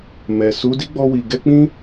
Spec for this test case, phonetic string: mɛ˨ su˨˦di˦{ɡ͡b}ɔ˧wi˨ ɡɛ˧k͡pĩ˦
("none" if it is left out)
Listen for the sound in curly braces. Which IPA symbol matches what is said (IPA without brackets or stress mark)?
ɡ͡b